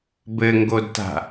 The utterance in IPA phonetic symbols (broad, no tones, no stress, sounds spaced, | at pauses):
b ɘ ŋ ɡ o d t a̤